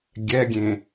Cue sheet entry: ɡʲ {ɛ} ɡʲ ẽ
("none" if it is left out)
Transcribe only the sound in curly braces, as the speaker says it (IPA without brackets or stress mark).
ɛ